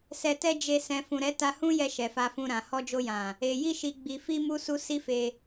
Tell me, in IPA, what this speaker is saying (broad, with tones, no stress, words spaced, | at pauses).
sɛ˨tɛ˧ d͡ʒe˧ sɛ̃˨fũ˨ɾɛ˨˦ ta˧hũ˦jɛ˧ ʃɛ˨fa˧fũ˧ɾã˨ hɔ˧d͡ʒo˧jã˨ | e˨ ji˧ʃi˨ɡ͡bi˨fi˧ mu˦su˦ si˦fe˧